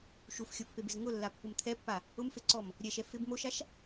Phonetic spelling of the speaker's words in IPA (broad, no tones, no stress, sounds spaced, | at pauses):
ʃ u f xʲ o pː e b ɪ z ŋ ʊ lː a pː ʊ m t̪ʰ ɛ pː a | ʊ m f e ǀ ɔ m | ɾʲ ɛ ʃ ɛ f ɪ b m o ʃ a ʃ